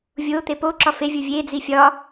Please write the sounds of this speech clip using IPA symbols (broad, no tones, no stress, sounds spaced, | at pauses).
vʲ o t̪ e p o ǁ ɒ f e vʲ u vʲ e d͡z i fʲ ɒ